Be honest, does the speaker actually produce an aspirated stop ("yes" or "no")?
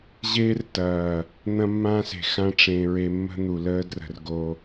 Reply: no